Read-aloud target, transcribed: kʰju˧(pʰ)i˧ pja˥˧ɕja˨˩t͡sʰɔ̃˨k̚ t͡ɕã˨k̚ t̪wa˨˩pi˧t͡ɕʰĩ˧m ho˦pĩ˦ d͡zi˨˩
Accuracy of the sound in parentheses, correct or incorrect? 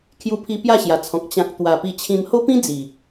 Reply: correct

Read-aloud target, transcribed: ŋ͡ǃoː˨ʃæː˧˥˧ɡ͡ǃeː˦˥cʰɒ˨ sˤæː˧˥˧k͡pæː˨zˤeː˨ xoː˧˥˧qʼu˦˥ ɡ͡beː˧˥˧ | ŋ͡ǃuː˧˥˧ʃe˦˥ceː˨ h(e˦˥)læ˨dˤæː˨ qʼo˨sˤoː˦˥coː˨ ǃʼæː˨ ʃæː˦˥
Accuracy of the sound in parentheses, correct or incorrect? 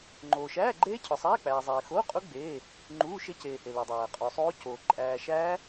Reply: incorrect: e˨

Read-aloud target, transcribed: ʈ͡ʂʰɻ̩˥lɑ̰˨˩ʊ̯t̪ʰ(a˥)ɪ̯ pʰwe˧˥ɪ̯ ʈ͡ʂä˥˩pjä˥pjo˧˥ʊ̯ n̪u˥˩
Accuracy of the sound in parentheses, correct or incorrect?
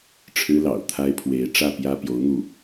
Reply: correct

